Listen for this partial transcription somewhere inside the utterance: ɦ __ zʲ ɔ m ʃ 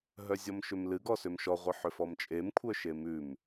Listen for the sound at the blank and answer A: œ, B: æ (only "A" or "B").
A